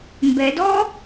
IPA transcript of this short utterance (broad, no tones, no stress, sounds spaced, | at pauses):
m b ɛ d ɔ